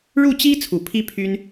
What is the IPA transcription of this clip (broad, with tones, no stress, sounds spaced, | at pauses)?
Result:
ɻ u˥˩ t͡ɕ i˥ t͡sʰ u˨˩ pʰ i˥ pʰ y˥ n